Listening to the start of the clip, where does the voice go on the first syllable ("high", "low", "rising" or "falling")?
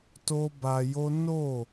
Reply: high